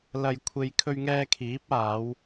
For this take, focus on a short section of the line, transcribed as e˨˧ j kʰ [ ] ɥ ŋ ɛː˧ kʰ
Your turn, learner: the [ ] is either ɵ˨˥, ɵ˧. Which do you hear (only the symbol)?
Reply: ɵ˧